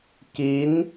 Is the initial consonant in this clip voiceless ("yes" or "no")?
yes